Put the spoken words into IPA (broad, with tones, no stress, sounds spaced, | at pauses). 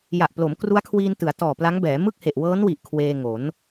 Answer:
j a˨˩ ʔ p l o˩˦ m k r u˦˥ a̯ kʰ w iː˧ n t ɯ˩˦ a̯ t ɔː˨˩ p l a˦˥ ŋ b ɛː˩˦ m ɯ˥˩ k̚ h e˨˩ ʔ w ɤː˦˥ n w i˨˩ ʔ kʰ w eː˧ ŋ o˩˦ n